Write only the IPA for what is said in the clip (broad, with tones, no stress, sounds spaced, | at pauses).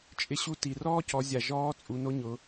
t͡ʃʼ ɪ˧ ɕ u˧ t i˩ r ɔː˥ c ɔ˩˧ zʲ a˩ ʒ ɔː˧˥ t͡sʼ u˩˧ n o˧˥ ɲ ʊ˩˧